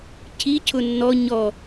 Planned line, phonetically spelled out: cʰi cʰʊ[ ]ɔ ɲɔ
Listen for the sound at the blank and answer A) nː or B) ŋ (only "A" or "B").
A